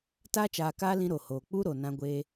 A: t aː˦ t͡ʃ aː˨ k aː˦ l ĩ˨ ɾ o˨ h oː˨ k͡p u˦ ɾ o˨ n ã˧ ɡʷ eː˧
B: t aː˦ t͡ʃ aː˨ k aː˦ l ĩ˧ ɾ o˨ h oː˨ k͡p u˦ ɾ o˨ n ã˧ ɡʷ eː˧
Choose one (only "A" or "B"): B